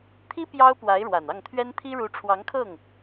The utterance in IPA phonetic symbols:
t̪ʰ i˥ p j ɑ˥ ʊ̯ p w a˧˥ ɪ̯ ɻ w a˨˩ n ɑ˥˩ ŋ t̪ʰ ɥ ɛ˥ n t̪ʰ i˥ ɻ u˧˥ ʈ͡ʂʰ w ɑ˧˥ ŋ kʰ ɤ˥˩ ŋ

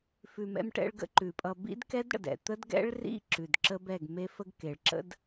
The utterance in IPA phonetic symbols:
f ʉ˨ m ɛ̰˧ m ʈ ɛ̰˧ ɭ ɡ ə̰˧ ǃ ʉ˨ pʼ ʌ˧ b ḭ˦ d k ɛ˦ d ɽ ə̰˨ d ɛ̰˨ t̪ ə˦ d ɡ ɛ̰˦ ɭ r ḭ˦ ǁ ʉ˨ d ǁ ə˦ b ɛ˦˨ ɡ m e˦ f ə˦ ɡ k e˨ ɭ ǁ ə̰˦ d

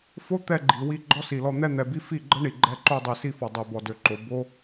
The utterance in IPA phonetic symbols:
f o˦ t̪ ɛ˧ ɡ͡ǃ i˨ w i˧ ɡ͡ǃ ɔ˦ s i˨ l ɔ˧ n̪ ɛ˧ n̪ ɛ˨ b i˧ f i˦˨ ɡ͡ǃ ə˦ ɳ i˨ ɡ͡ǃ ɛ˧ ǃ o˧ dˤ i˨ s i˧ f ɔ˨ dˤ ɛ˨ b ɔ˨ d ø˨ ǃ o˨ b o˦

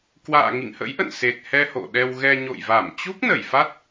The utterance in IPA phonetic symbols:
k w a̰ː˧˨ ŋ ḭ˧˨ ŋ h ə̰˧˥ j ʔ ə̰˧˨ n s e˨˩ t̚ h ɛ˧ h o̰˧˨ ɗ ɛ˧ w ɣ ɛ˧ ɲ o̰˧˨ j v a˧˩ m t͡ɕ u˦˥ k̚ n ə˧˩ j f a˦˥ t̚

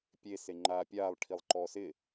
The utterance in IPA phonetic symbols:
pʲ e s e ŋ͡ǃ aː pʲ aː lˠ ʈʰ i lˠ ǃ ɔː s ɪ

